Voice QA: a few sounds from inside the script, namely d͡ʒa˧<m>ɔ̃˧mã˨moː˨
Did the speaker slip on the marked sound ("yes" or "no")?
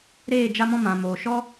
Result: no